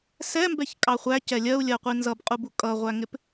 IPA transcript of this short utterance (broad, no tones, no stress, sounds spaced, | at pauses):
s ɛ m b ɛ ç kʼ ɑ χʷ æ c ɛ lʲ ɜ u̯ lʲ ɜ qʷ i n z ʌ b qʼ u b u kʼ ʌ ʁʷ æ ŋ ɪ p